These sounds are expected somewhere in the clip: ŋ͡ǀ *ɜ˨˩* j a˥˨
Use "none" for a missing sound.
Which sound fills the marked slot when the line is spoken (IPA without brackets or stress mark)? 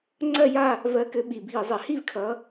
ɜ˥˨